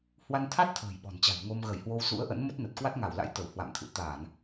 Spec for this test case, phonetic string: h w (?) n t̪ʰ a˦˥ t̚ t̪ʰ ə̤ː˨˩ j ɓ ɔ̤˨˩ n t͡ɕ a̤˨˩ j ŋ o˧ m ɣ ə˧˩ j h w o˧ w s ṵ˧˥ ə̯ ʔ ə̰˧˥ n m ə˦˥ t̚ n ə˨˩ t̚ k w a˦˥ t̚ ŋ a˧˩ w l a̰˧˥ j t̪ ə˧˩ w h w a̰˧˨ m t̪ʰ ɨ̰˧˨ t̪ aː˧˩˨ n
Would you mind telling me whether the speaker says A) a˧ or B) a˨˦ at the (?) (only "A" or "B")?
A